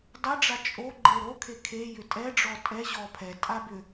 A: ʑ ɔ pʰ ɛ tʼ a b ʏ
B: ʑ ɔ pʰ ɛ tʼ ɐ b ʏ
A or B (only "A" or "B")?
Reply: A